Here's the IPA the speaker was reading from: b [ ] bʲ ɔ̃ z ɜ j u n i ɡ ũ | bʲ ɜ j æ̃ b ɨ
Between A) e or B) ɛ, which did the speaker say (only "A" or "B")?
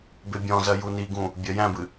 A